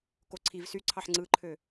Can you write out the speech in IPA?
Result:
k o ǀʰ i v s y ǀʰ ɑ ħ ŋ͡ǀ ɯ ǃʰ ø

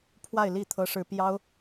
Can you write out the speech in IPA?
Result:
pʰ w a˥˧ ɪ̯ l i˥˩ t̪ʰ ɤ˥ ʂ ɻ̩˥ p j ɑ˥ ʊ̯

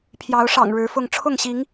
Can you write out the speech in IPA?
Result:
pʰ j ɑ˨˦ ʊ̯ ʂ ɑ̰˨˩ ŋ ɻ ɻ̩˨˦ f ʊ˥˨ ŋ ʈ͡ʂʰ ʊ˥˨ ŋ ɕ i˨˦ ŋ

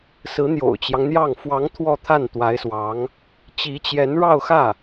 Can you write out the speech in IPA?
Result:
s ɹ̩˧˥ n̪ j o̰˨˩ ʊ̯ t͡ɕ j ɑ˦ ŋ n̪ j ɑ˥˩ ŋ f w ɑ˧˥ ŋ t̪ʰ w ɔ˥˧ t̪ʰ a˥˩ n t̪ w a˧˥ ɪ̯ s w ɑ˧˥ ŋ | t͡ɕ i˧˥ t͡ɕ j ɛ˧˥ n ɻ ɑ˥˧ ʊ̯ x ä˥˩

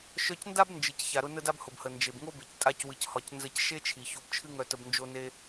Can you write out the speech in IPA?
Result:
ʃ œ˧ c n d a˥ b n d͡ʒ ɨ˩ c ç a˩ ɾ ʊ˧ n ə˧ d a˧ b h ʊ˩ b h ə˩ n d͡ʒ e˩ b ŋ o˥ b e˩ c tʼ a˥ c w ɨ˧ c h ɒ˧ c n z ə˧ c ʃ e˥ t͡ʃʰ i˩ ç o˧ b t͡ʃʰ ɨ˥ ŋ œ˧ t ə˧ b n d͡ʒ o˧ n e˧

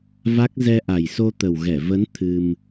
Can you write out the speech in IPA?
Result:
v a˦˥ k̚ z ɛ˧ ʔ a˨˩ j s o˧ t̪ ə˨˩ w ɣ ɛ˧˩ v ə˨˦ n t̪ʰ ɨ˧ m

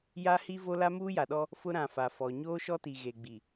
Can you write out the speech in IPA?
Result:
j a˦ h i˦ v o˦ l a˦ m uː˦ j a˨ ɗ ɔ˦ | f ʊ˦ ɾ ã˨ f a˨ f ɔ˨ ɲ oː˦ ʃ ɔ˦ t i˨ ɣ e˨ ɡ͡b i˨

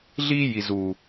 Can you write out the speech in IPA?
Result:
ɮ iː˦ j i˨ z uː˨

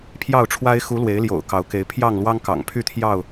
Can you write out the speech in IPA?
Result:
pʰ j ɑ˥˨ ʊ̯ ʈ͡ʂʰ w a˦ ɪ̯ x u˨˦ l w e˨˦ ɪ̯ l j o̰˨˩ ʊ̯ k ɑ˨˦ ʊ̯ k e˨˦ ɪ̯ pʰ j ɑ˥˨ ŋ l w ɑ˦ ŋ k ɑ̰˨˩ ŋ pʰ y˥˨ t̪ʰ j ɑ˥˨ ʊ̯

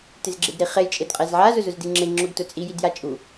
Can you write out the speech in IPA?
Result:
t ɪ z ɡ͡ǁ e d ɾ i χ e j t͡ʃʼ e d qʼ e z ʕ a z ʊ z ʊ z d i ŋ͡ǁ e ŋ͡ǁ ʊ ɡ t ʊ t͡sʼ i j i d j a t͡ʃʼ u

